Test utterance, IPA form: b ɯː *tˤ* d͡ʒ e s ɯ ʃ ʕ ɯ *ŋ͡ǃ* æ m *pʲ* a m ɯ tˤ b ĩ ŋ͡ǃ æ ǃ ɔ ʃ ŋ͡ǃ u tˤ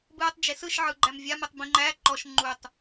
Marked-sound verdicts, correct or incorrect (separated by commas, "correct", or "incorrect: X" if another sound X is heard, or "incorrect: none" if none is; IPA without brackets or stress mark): correct, incorrect: ɡ͡ǃ, incorrect: vʲ